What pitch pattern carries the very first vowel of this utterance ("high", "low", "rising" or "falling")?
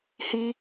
high